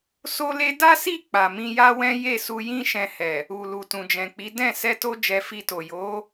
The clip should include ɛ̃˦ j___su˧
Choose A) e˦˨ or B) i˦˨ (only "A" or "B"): A